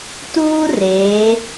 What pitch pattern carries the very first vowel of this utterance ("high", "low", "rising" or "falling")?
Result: high